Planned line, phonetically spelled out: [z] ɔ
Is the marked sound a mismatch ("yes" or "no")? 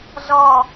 no